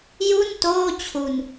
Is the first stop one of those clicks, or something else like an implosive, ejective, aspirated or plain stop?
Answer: plain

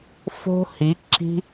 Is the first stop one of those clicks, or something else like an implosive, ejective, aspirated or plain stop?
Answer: click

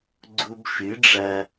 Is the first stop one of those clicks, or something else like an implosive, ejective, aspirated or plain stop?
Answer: click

